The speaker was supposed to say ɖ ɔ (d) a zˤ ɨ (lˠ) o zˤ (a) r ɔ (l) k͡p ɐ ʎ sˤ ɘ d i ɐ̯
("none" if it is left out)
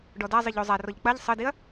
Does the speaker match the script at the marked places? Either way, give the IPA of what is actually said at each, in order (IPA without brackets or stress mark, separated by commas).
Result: d, ʎ, a, ʎ